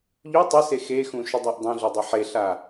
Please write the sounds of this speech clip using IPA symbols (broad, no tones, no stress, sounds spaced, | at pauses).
ʎ u tˤ ə s e x e x ũ ʃ ʏ dˤ a ʔ dˤ ĩ ɮ u dˤ e ħ e ɬ a